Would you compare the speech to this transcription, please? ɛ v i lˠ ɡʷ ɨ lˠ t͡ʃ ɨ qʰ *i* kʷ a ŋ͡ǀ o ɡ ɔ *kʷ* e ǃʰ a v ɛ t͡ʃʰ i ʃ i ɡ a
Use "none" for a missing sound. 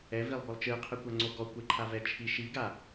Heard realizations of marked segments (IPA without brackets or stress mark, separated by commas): ɨ, kʷ